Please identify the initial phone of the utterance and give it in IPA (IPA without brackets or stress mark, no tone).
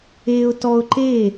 e